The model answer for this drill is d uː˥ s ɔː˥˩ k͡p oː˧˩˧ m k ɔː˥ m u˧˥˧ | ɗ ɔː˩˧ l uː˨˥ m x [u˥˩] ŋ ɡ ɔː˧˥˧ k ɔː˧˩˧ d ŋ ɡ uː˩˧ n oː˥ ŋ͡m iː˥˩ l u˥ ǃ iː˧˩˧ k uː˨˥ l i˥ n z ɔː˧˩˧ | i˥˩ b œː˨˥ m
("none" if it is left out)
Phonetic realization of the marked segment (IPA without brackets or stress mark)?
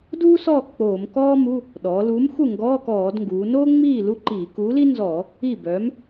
u˥˩